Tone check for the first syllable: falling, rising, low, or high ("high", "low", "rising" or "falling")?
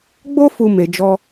high